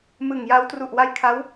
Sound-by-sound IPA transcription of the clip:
m ɯ˨˩ ŋ j a˦˥ w t r u˨˩ ʔ w a˧ j kʰ a˦˥ w

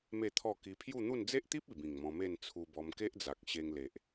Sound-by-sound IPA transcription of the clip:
m e˥˧ t̪ʰ ɔ˥˧ k i˧ pʰ j u˥˧ n̪ u˥˧ n d͡z e˦ ʔ t̪ i˦ p̚ i˨˩ b ĩ˨˩ ŋ m ɔ̃˧ m e˥˧ n t͡sʰ u˧ b ɔ˧ m k e˦ ʔ d͡z a˨ k̚ ɕ e˧ ŋ l e˨ ʔ

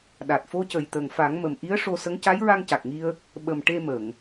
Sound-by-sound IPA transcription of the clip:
ɗ a˨˩ t̚ f o˧˥ c ə˨˩ j t̪ ə˨˩ ŋ f a˨˩˦ ŋ m ə˨˩ m ʔ i˧˥ ə̯ ʂ o˧ s ə˧˥ ŋ c a˧˥ j ɹ a˧ ŋ c a˨˩ k̚ ŋ i˧ ə̯ | ɓ ə˨˩ m ʈ e˧ m ə˨˩˨ ŋ

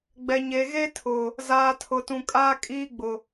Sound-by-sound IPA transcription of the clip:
ɡ͡b ɛ˨ ɲ e˨ ɣ e˦ tʰ ʊ˨ | z aː˨ tʰ ʊ˨ t ũ˨ kʼ aː˦ kʼ iː˦ ɡ͡b ʊ˨

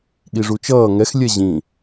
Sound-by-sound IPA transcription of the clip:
ɠ i ʐ u t͡ʃ ʌː ŋ ɛ x lʲ ɛ ʑ ĩ

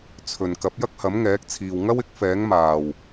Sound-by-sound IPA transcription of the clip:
t͡sʰ ɵ˨ n k ɐ˨˥ p̚ j ɐ˥ k̚ h ɐ˨˥ m ŋ ɛː˨˥ k̚ t͡sʰ iː˨ w ŋ ɐ˥ w ɪ˨˥ k̚ f ɛː˨˥ ŋ m aː˨˩ w

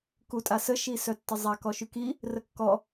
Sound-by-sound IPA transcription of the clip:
k u tʼ a s ə ʃ i s œ tː ə zˤ a k ɔ ʃ y k i | r ə kː ɔ

